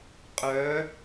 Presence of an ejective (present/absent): present